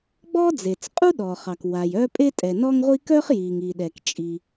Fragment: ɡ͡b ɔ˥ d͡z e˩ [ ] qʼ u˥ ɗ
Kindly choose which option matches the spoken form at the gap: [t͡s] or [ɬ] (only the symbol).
t͡s